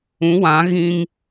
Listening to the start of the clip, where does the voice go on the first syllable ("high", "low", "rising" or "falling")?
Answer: rising